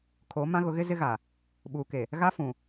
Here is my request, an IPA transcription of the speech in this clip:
kʰo˨˦ mã˦ ɣʊ˨˦ɣɪ˦ zɪ˦ɣa˨ | ɓuː˨ke˨ | ɣa˦fũ˨

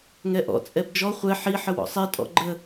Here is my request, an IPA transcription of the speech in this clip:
ŋɛʔɔ̰ t͡sʼɛbd͡ʒɔ χʷɛ ħi ħəwɔ̰sˤɛ tʼɔ̰ɡ͡ǃə

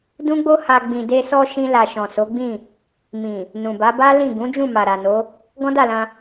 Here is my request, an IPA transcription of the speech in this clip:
dũ˦ɡ͡bo˦ha˧ ɡ͡bĩ˨de˧sɔ˧ ʃĩ˦la˧ ʃɔ̃˨so˨˦ɡ͡bĩ˦˨ | mĩ˨ | nũ˨ba˨˦ba˦ lĩ˦˨ ɡũ˨˦d͡ʒũ˦˨ma˨ ɾa˨no˨˦ | ɡɔ̃˦da˦˨lã˧

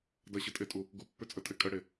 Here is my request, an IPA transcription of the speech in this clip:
dɐɕətʼetʼu | ɡupːʏt͡sʼətʼe kʼəɽe

